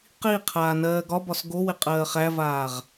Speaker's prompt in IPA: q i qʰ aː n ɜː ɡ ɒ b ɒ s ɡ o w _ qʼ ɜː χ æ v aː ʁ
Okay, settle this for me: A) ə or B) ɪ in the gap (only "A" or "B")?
B